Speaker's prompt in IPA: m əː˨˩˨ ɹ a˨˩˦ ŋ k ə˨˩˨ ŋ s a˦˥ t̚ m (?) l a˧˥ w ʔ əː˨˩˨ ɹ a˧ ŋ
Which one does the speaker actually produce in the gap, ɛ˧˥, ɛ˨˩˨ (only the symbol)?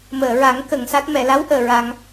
ɛ˨˩˨